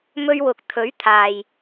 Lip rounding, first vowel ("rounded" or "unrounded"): rounded